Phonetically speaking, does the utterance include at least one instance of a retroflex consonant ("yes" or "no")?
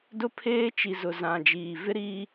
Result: no